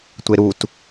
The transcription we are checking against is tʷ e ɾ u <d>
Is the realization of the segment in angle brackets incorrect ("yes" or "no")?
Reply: yes